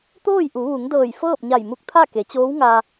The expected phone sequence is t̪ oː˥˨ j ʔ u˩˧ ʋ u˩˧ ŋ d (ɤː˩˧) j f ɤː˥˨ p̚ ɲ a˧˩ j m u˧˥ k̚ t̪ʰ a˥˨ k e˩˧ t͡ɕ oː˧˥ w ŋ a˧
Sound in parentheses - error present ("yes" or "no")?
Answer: yes